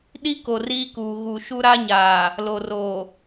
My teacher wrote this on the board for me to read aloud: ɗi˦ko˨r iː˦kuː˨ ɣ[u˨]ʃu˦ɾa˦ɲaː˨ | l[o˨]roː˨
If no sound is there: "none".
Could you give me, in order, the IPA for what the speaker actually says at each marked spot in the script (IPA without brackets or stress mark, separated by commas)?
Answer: u˨, o˨